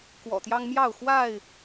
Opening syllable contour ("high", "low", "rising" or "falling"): low